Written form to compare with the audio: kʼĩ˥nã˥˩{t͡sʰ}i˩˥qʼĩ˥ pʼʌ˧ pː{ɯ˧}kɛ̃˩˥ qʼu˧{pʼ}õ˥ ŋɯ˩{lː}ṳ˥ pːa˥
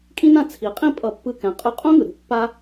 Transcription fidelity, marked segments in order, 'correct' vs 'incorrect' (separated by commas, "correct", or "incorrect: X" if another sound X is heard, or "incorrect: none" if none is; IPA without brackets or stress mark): correct, correct, incorrect: qʼ, incorrect: ɾ